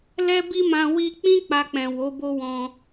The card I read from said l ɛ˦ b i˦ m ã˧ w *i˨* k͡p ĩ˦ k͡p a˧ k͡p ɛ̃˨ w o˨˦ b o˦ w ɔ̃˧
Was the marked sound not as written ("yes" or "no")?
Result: yes